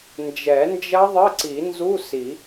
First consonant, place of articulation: alveolar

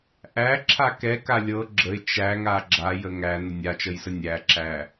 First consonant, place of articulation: glottal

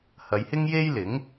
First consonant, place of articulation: glottal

